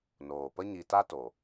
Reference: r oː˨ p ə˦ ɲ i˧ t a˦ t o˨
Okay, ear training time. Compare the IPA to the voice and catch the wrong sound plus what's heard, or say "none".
r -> n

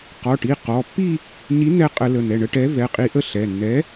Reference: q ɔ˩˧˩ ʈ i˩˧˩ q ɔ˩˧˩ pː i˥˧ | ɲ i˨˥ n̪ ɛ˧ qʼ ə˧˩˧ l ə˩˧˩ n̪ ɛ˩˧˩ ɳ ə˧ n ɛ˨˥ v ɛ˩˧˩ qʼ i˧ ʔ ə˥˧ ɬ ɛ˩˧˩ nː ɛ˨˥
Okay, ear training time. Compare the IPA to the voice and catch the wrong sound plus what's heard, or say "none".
n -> ʈ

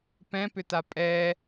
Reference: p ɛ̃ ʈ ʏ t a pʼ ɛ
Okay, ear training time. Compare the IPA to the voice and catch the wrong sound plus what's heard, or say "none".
ʈ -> p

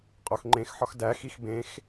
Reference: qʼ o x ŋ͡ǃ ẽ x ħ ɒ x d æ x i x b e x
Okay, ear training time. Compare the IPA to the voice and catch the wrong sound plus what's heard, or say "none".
e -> ẽ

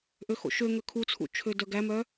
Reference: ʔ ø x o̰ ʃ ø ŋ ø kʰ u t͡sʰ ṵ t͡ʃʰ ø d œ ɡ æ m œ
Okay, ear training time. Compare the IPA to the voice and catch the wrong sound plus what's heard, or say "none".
none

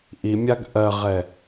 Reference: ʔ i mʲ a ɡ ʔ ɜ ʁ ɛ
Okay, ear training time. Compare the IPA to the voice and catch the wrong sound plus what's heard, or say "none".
none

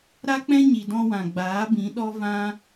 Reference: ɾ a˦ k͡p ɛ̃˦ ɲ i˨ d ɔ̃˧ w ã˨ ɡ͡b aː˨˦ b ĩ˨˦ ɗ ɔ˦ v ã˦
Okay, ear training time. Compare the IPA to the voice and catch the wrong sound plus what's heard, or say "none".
none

